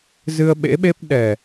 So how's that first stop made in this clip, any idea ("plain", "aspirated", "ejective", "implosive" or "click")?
implosive